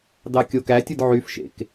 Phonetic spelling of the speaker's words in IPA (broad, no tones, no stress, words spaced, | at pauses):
dɑkʲokætʲɯd ʕyfʃḛk